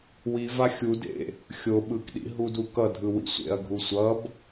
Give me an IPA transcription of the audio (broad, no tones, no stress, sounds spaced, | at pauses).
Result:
w i v a xʲ u d ḛ | xʲ o ɓ ɯ k ɗ ḭ ɦ u d u k ʌ dʱ ɯ w ḭ sʷ ḛ ɐ̯ ɡʱ u sʷ ʌ b